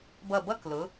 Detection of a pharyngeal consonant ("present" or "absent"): absent